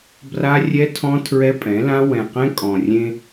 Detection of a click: absent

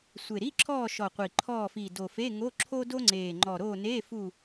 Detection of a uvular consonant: present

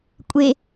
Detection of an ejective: present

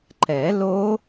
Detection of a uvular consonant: absent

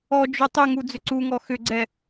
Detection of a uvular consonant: absent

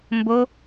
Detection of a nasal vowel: absent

